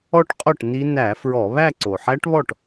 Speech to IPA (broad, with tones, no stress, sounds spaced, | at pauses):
ɔ˥˧ ʈ qʼ ɔ˥˩ ʈ n i˦˥ n æ˧˩˧ f ɹ ɔ˧˩˧ β æ˥˧ ǀ o˩ ħ æ˦˥ ʈ β ɔ˥˩ ʈ